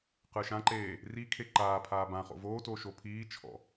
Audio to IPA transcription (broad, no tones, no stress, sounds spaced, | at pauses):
q ɯ ʃ ã ǃ eː | r i kʰ e ǃ aː pʰ aː b ã χ o̰ v oː t o ʃ o pʰ iː t͡ʃʰ ɔ̰